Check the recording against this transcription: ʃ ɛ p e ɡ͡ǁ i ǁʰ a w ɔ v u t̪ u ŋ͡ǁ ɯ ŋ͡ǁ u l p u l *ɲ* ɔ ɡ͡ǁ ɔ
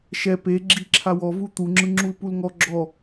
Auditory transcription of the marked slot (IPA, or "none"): ŋ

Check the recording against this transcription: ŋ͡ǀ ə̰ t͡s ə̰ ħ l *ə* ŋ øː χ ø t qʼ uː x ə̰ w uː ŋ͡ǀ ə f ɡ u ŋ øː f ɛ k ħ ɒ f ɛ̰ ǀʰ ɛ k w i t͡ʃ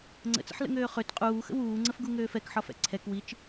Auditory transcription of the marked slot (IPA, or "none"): ə̰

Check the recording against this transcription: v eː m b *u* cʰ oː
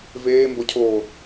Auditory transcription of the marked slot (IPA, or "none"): o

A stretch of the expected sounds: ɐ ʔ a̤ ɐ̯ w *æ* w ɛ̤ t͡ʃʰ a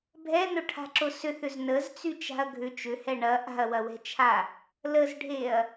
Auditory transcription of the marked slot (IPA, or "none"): ɐ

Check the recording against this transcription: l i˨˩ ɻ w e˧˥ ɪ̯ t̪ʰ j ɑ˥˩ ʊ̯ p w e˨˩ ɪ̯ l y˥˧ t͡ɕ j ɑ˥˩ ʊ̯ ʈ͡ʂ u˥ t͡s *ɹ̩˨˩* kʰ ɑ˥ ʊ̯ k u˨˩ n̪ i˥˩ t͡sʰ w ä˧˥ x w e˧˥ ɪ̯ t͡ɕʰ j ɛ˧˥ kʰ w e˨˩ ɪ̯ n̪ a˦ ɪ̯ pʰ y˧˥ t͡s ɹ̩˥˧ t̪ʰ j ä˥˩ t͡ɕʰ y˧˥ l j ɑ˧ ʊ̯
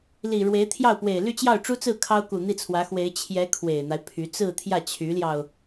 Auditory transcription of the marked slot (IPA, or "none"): ɹ̩˥˩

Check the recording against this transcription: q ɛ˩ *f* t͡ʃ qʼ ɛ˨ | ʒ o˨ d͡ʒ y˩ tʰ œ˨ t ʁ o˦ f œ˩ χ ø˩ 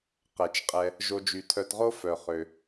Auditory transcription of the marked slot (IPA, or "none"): none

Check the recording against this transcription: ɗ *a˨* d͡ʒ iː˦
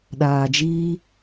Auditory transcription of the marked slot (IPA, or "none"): aː˨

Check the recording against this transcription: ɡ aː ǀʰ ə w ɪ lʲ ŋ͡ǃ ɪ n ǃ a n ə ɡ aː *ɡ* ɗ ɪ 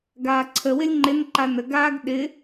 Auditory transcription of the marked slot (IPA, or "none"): ɡ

